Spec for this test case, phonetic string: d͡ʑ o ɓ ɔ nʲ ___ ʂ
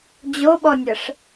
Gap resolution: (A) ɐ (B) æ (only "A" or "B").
A